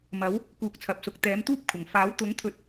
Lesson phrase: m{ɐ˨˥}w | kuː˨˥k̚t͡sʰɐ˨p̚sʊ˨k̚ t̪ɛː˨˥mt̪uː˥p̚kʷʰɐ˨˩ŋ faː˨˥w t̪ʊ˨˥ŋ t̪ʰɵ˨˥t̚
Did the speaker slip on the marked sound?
no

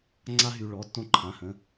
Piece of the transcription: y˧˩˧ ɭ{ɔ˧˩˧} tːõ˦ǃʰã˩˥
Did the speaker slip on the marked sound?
yes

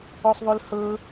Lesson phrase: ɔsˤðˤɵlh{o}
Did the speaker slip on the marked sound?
yes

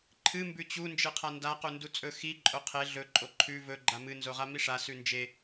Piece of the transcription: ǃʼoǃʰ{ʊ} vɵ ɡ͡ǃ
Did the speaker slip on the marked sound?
yes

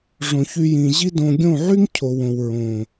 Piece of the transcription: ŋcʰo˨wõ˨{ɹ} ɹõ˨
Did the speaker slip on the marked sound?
yes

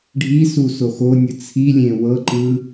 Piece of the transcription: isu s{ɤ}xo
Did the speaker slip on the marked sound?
yes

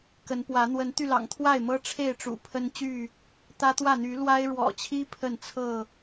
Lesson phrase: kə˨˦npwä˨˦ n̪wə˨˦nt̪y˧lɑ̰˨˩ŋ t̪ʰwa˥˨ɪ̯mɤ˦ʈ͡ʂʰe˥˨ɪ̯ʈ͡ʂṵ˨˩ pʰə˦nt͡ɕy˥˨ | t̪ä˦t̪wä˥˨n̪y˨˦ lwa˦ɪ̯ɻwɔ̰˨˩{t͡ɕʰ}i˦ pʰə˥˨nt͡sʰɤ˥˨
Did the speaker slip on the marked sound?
no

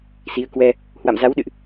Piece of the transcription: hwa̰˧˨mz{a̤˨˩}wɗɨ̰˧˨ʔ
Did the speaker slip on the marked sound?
yes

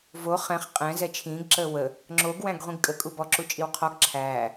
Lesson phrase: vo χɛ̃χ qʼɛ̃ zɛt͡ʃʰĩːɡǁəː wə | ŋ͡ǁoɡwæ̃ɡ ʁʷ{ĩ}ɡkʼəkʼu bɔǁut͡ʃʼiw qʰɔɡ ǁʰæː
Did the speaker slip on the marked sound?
no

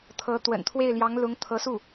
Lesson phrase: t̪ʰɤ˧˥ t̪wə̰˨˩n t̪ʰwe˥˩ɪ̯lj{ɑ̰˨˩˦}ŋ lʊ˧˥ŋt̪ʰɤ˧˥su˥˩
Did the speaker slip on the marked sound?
yes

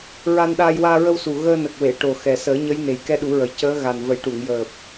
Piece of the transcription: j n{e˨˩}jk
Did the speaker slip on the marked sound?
no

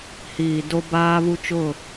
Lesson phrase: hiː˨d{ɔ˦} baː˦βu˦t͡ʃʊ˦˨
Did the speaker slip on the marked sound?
yes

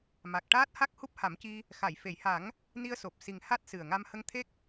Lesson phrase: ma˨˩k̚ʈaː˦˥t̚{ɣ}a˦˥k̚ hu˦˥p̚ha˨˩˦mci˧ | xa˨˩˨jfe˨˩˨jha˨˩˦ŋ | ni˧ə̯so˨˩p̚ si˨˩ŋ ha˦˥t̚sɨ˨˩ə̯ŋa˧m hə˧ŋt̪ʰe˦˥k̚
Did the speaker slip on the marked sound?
yes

